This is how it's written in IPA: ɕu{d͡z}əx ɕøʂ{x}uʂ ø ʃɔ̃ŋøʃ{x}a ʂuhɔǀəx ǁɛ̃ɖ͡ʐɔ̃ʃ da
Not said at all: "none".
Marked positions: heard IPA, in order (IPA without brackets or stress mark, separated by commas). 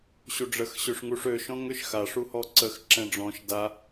ɖ͡ʐ, ŋ, x